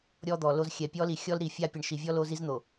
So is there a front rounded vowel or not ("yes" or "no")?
no